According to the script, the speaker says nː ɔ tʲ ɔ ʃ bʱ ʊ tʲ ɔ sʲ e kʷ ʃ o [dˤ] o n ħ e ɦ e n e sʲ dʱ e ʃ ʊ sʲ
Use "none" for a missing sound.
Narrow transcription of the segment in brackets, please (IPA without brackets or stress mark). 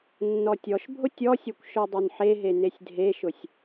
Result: dˤ